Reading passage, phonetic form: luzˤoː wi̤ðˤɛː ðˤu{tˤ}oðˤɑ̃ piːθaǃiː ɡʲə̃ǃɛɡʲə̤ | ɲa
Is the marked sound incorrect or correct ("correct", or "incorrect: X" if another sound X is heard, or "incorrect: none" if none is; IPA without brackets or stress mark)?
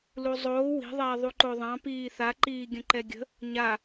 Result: incorrect: ǃ